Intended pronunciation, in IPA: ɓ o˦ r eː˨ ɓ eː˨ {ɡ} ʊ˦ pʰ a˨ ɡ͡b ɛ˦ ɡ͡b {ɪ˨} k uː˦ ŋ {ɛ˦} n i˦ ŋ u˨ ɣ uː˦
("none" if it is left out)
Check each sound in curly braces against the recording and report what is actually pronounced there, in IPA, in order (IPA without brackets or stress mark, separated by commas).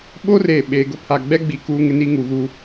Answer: ɡ, i˨, ɪ˦